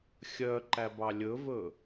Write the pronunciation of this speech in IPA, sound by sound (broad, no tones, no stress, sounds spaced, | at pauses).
xʲ œ ǃ æ b ɑ lʲ ɵ v ɵ